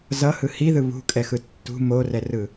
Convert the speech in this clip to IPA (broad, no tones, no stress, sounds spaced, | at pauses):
z ʌ h ɯ h i ð ɯ β ṳ kʼ ɛ x ɯ tː ṳ m o r ɛ r ɯ